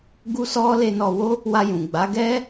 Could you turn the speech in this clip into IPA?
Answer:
ɡ u˦ s ɔ˦ l e˧ n ɔ˧ w o˦ | w a˧ j ũ˨ ɡ͡b a˨˦ ɡ ɛ˦

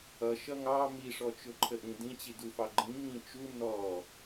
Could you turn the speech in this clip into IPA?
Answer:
ʌ ʃ ʌ ŋ ɑ m i ʂ ɔ t͡ʃ ʊ ǃʰ ə ʔ ĩ d ĩ t͡ɕ i d u f ɑ ɡ͡ǃ ĩ ŋ ĩ t͡ʃ u n ɔ

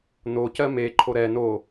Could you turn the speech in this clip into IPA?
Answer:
n o c ɜ m e ǃʰ o ɾ ɛ n o

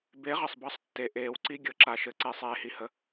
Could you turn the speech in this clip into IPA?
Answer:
b e˨˥ ʁ ɘ˩ sˤ b ʌ˧˥˧ sˤ tː e˩ ʔ eː˨˩˦ w ǀ i˧˥˧ ɡʲ ɤ˨˩˦ ǁ a˩ ʃ ɘ˨˩˦ ǀ e˨˩˦ sˤ eː˩ h i˩ h ə˩

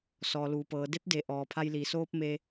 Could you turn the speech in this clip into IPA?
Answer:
s ɔː˩ l uː˩ p ɤː˩˧ d e˧˥ p̚ d e˩˧ ʔ ɔː˩ pʰ a˧ j l iː˩ s oː˧ p̚ m e˧

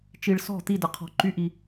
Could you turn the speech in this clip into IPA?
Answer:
t͡ʃ i˩ ɭ s ɔ̤˧˩ t̪ i˧˩ d ə˩ qʰ ɔ̤˩ ǃ y˨˥ ʔ i˩

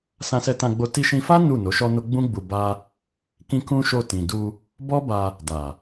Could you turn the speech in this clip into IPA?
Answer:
s ã˧ s ɛ˧ t ã˧ ɡ͡b o˧ t i˧ ʃ ĩ˧ f a˦ n u˦˨ n o˨˦ ʃ ɔ˦ n o˦ ɡ͡b ũ˦ ɡ͡b u˧ b a˦ | k ĩ˦ k ũ˦ ʃ o˧ t ĩ˨ d u˧ | b ɔ˦ b a˧ | d a˨

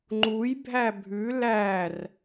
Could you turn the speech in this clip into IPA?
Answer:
ŋ͡ǃ u j bʱ æ bʱ ʉ l æ r

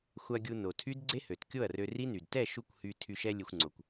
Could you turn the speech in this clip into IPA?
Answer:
xʷ a˧ ɡʲ u˧ n o˨ tʰ y˦ d ɡ͡ǀ e˦ h ø˨ t kʲ o˦˨ ɐ̯ r ø˧ r i˦ n y˨ d t ɛ˦˨ ʃ u˧ kʷ h y˧ tʰ y˧ ʃ ɛ˧ lʲ e˧ xʷ ŋ͡ǀ o˨ kʷ

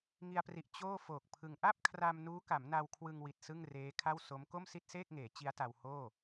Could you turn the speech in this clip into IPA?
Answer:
ŋ i˧ a̯ p r i˨˩ ʔ t͡ɕ oː˥˩ f oː˨˩ k̚ pʰ ɯ˧ ŋ ʔ a˥˩ p̚ kʰ r a˧ m n uː˦˥ k a˩˦ m n a˧ w kʰ w ɯ˧ ŋ w i˨˩ t̚ s ɯ˥˩ ŋ r eː˦˥ kʰ a˥˩ w s o˦˥ m k o˥˩ m s i˥˩ t̚ s eː˥˩ k̚ ŋ eː˩˦ t͡ɕ i˦˥ a̯ t a˧ w h oː˥˩

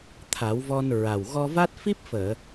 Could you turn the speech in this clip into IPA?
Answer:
t̪ʰ a˨˩˦ w v ɔ˧ n ɹ a˨˩ w ɣ ɔ˧ v a˦˥ t̚ f i˦˥ p̚ f əː˨˩˨

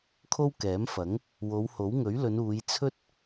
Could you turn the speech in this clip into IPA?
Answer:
kʰ o˥ w k ɛː˨˥ m f ɐ˨˥ ŋ | w o˨˧ w h o˨˥ w ŋ ɵ˨˥ ɥ l ɵ˨˧ n uː˨˧ j t͡sʰ ɵ˥ t̚

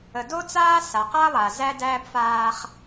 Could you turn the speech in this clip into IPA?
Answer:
ə˨ d o˦ t͡s aː˦ s a˨ q a˦ lˠ a˨ z æ˦ d æː˦ b f aː˦ χ

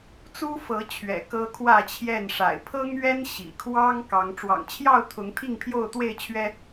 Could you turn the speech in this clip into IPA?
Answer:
t͡s u˦ f ɤ˨˦ t͡ɕʰ ɥ ɛ̰˨˩ k ɤ˦ kʰ w ä˥˨ t͡ɕʰ j ɛ˥˨ n ʂ a̰˨˩ ɪ̯ pʰ ɤ˦ ŋ ɥ ɛ˦ n ɕ ḭ˨˩ kʰ w ɑ˦ ŋ k ɑ˨˦ ŋ ʈ͡ʂ w ɑ̰˨˩ ŋ t͡ɕʰ j ɑ˥˨ ʊ̯ t̪ʰ ʊ˨˦ ŋ t̪ʰ i˥˨ ŋ pʰ j o˥˨ ʊ̯ t̪ w e˥˨ ɪ̯ t͡ɕʰ ɥ ɛ˦

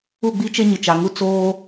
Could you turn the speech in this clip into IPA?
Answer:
u˦˨ ɡ͡b i˦ t͡ʃ e˦ ɲ ɪ˨ t͡ʃ a˨ ŋ u˦ t͡s oː˦

